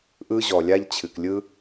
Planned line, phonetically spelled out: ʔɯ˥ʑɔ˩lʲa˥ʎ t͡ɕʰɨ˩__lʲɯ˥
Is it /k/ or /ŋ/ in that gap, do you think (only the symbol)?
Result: k